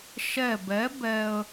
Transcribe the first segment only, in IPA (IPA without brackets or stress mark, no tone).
ʃ